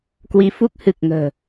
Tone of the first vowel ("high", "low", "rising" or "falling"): rising